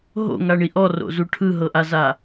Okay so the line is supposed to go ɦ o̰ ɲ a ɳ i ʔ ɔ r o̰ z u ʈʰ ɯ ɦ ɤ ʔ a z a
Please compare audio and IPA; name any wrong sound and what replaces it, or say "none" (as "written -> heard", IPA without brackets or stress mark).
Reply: ɲ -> ŋ